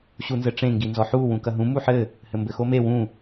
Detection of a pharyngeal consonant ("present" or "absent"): present